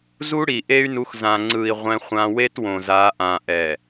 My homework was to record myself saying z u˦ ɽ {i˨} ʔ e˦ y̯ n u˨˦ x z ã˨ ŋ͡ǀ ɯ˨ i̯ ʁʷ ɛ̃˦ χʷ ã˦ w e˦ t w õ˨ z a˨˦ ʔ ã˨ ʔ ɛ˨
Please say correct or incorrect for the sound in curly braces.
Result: correct